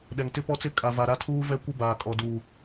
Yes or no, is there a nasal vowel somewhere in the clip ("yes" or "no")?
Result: no